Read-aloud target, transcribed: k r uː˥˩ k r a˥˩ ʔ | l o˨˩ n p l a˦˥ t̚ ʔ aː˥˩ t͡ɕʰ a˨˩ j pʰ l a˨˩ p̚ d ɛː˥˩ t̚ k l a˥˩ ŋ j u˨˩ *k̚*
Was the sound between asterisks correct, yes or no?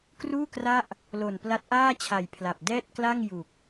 yes